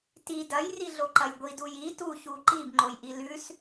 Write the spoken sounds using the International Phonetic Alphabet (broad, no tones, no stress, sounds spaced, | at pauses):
t i d ɐ j r i ɮ o ǃ ɐ j ɡʷ i d u j i t u ç u ǃ i b ŋ͡ǃ o j ʔ i l ʉ s